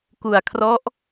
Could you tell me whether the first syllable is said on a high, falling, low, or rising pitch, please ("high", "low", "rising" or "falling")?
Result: low